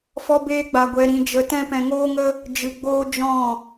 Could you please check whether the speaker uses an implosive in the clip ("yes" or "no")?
no